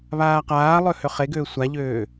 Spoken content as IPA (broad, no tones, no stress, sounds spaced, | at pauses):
β aː q aː lˠ ø h ø χ e ɡ øː sʷ a ʎ øː